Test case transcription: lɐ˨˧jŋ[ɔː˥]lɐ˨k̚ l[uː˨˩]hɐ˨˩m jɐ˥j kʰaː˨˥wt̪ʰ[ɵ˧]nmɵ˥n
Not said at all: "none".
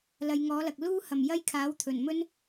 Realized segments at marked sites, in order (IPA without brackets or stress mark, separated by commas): ɔː˨˥, uː˥, ɵ˨˩